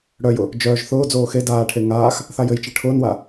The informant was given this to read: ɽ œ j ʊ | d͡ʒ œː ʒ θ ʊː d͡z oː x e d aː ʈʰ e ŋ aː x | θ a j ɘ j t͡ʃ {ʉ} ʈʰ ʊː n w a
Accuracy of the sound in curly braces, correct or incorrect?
incorrect